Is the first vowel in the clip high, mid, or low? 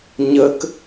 mid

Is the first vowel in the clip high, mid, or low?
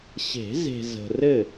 mid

